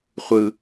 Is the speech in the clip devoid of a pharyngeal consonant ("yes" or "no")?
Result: yes